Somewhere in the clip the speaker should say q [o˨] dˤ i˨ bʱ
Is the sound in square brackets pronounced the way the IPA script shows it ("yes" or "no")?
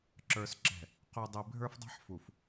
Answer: no